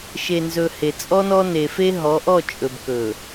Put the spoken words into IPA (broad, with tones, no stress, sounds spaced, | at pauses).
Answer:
ʃ e˨ n z ɵ˨ h e˨ t͡sʼ ɔ˦ n ɔ˦ n e˨ f e˦ ɦ ɔ˨˦ ʔ ɔ˦˨ t͡ʃʼ ɵ˨ b k ɵ˨